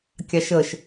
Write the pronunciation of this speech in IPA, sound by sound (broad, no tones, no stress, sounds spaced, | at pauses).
kʲ ɑ ʃ ə ʃ